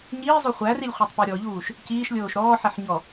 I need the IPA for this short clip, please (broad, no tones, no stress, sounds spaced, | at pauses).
ɲ iː zˤ o χʷ æ r i lʲ χʷ æ tˤ p ɔ ɾʲ ɔ ʎ uː ʃ | c iː ʃ lʲ oː ʃ ɾ ɔː ħ ɛ ħ ɲ ɔ